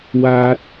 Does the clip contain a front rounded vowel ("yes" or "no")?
no